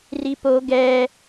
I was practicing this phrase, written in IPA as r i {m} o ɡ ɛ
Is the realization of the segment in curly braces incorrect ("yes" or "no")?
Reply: yes